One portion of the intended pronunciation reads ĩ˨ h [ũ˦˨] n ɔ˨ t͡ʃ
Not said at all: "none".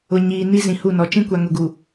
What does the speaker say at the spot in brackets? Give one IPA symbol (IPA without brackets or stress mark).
u˦˨